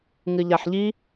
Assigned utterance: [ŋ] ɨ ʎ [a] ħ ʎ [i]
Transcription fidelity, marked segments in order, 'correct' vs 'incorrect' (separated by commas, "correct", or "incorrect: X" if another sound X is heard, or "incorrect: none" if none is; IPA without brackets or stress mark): correct, correct, correct